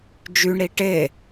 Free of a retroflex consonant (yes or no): no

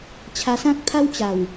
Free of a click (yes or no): yes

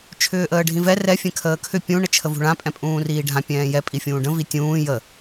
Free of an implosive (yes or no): yes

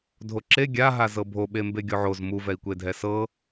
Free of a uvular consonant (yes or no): yes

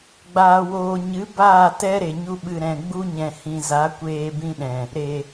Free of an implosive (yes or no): no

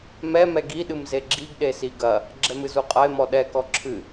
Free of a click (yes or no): no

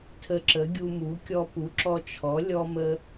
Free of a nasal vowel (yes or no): yes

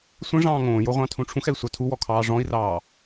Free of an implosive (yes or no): yes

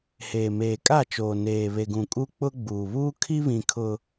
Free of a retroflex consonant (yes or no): yes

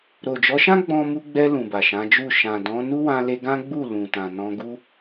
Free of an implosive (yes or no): yes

